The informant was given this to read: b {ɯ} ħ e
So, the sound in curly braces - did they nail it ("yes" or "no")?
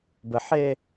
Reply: no